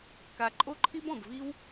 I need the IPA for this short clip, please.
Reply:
k a˧ ǃʼ o˦˨ ǃʰ i˦ b ɔ̃˨ b v i˦ w

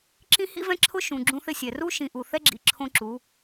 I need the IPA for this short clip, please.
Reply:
ǁ ĩ˦ h ḭ˦ v ɛ̃˦ ǁʰ ʊ˦ ʃ ũ˨ ɡ͡ǁ ũ˦ θ ɪ˦ sʲ ɛ˨ r u˦ ʃ ĩ˨ ʔ u˨ θ ɛ˦ ɡ͡ǁ ḭ˨˦ ǁʰ õ˦ ǁ u˨˦

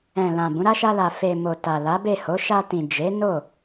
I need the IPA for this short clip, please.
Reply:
ɛ̃˨ l ã˨ b ũ˨˦ ɾ a˦ ʃ a˧ l a˨ f e˨ m o˨ t a˨ l a˨˦ b e˦˨ h o˨˦ ʃ a˧ t ĩ˨ d͡ʒ e˨˦ n o˦˨

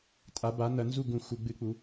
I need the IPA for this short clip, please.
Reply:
tʼ a˩˥ b a˩˥ n ɐ˩˧ n z u˥˩ ɡ ũ˧˩˧ x u˩˧ ɡ͡b ɨ˧˩˧ k͡p u˩˧

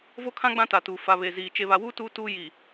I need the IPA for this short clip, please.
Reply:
v o˦ kʰ ã˦ ɡ͡b ã˦ t a˨ t uː˨ f a˨ β e˨ z iː˨ t͡ʃ e˨ β a˨ w uː˦ t uː˦ t uː˦ j i˨

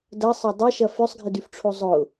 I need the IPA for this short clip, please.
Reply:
d ɐ sˤ ɐ dˤ ɐ ʃ ɐ f ʏ sˤ ɡʱ ɪ d y f ʈ͡ʂʰ o zˤ ʊ

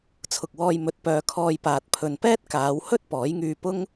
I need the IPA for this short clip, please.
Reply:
t͡sʰ ʊ˨ k̚ w ɔː˧ j m ɵ˨ t̚ p œː˧ kʰ ɔː˧ j p aː˨ t̚ pʰ ɵ˨ n p ɛː˥ t̚ k aː˨˧ w h ɵ˥ t̚ p ɔː˨˥ j ŋ yː˧ p ʊ˥ ŋ

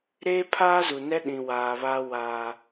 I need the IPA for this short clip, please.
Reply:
ɾ eː˦ pʰ aː˦ z u˨ n ɛ˦ ɗ ĩ˨ w aː˨ β aː˦ w aː˦

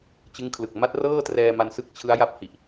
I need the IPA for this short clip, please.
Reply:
t͡ɕ ɯ˦˥ ŋ kʰ l ɯ˨˩ k̚ m a˦˥ t̚ r ɤː˥˩ t r ɛː˧ m a˧ n s ɯ˥˩ k̚ t͡ɕʰ ɯ˦˥ a̯ j a˦˥ p̚ h i˨˩ ʔ

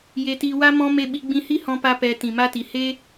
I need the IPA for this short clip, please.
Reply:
j e˧ t i˧ w a˦ m ɔ̃˦ m e˧ ɓ i˧ ɡ͡b ĩ˧ h i˦ h ɔ̃˦ p a˦ p ɛ˧ t ĩ˨ m a˧ t i˨ h e˦

